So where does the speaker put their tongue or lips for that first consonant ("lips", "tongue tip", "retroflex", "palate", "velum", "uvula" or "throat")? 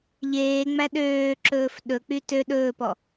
palate